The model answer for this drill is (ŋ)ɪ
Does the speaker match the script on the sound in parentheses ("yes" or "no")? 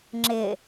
no